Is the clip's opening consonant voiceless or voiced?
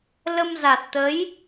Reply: voiced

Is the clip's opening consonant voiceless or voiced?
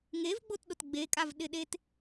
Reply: voiced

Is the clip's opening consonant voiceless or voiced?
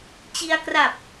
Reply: voiceless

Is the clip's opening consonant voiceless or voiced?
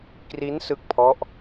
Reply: voiceless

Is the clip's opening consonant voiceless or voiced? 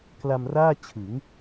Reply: voiceless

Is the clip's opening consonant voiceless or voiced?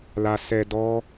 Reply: voiced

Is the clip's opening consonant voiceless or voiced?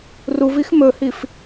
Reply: voiced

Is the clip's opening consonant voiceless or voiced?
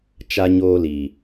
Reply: voiceless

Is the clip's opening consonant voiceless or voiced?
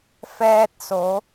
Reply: voiceless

